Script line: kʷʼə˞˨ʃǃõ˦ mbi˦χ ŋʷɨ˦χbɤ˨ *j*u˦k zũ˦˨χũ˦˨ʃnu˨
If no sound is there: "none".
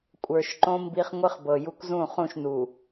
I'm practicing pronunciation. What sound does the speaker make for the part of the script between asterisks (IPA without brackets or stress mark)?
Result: j